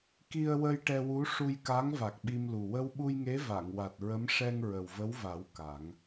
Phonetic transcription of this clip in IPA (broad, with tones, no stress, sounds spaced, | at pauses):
k i˧ ə̯ w ə˧ j ʈ ɛ˧ w u˧˥ ʂ u˧ j k a˧˥ ŋ v a˨˩ k̚ ɓ i˧ m l u˨˩ w ə˧ w ɓ u˧ j ŋ e˧˥ v a˨˩˨ ŋ w a˨˩ t̚ ɹ ə˧˥ m ʂ ɛ˧ ŋ ɹ ə˨˩ w v ə˧˥ w v a˨˩˦ w k a˨˩˦ ŋ